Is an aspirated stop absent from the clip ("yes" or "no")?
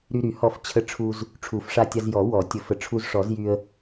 no